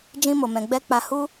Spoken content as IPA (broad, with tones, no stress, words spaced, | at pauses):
d͡ʒĩ˧mo˨mɛ̃˨ɡ͡bɛ˧ k͡pa˧hu˦